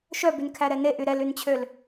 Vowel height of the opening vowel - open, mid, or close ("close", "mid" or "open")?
mid